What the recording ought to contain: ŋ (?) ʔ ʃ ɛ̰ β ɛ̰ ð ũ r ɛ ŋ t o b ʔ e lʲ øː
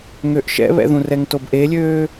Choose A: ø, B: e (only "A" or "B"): A